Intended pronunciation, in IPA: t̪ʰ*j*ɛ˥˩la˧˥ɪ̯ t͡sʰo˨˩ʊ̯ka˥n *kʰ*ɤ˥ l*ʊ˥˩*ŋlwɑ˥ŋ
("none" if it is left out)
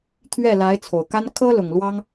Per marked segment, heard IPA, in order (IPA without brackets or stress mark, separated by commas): ɥ, kʰ, ʊ˨˩